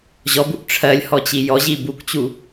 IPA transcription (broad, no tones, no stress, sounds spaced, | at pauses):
ʑ ɔ b u ʔ ʈ͡ʂʰ ɜ lʲ h ɔ t͡ɕ i j ɔ ʑ i b u k t͡ɕ u